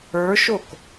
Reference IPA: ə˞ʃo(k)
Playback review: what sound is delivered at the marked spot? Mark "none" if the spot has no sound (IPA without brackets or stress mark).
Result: k